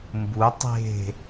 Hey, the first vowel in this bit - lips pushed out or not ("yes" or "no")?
yes